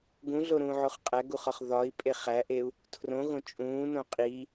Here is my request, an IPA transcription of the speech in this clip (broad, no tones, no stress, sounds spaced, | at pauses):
ɡ ũ ɮ o ɾ ũː ʕ o χ qʼ æ ɡ u χ ɒ χ ð ɒ i̯ pʼ e χ æ ʔ e u̯ | tʰ r õ ɣ õ t͡ʃʼ ũː n õ qʼ i